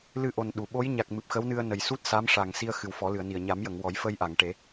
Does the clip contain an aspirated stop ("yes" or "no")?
no